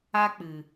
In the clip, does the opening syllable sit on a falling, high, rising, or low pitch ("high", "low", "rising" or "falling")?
high